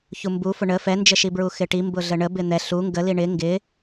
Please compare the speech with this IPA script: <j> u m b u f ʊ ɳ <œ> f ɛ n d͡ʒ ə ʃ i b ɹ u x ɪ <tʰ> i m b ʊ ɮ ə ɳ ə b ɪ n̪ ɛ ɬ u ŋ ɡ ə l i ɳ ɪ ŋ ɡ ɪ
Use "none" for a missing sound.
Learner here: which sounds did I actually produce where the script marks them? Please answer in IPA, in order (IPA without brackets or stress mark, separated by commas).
ç, ə, ʈ